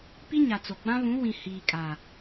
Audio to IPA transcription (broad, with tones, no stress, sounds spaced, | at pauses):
p i˦ ɲ a˨ t͡s o˨ ɡ͡b ã˦ β ũ˨˦ w ĩ˨ h iː˨ kʼ a˨